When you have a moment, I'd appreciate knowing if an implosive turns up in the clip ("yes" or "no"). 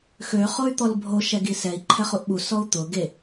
yes